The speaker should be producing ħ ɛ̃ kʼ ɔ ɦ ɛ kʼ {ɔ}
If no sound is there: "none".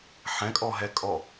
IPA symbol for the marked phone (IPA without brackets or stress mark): ɔ